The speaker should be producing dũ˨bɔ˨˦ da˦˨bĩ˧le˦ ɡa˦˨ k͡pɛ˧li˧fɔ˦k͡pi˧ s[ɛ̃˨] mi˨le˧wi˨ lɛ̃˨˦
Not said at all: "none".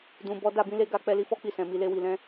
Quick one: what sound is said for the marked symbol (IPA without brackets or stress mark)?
ɛ̃˨